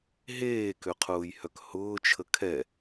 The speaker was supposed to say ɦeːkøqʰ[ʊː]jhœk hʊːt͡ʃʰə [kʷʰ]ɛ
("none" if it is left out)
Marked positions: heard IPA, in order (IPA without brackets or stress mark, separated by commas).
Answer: ʊː, kʰ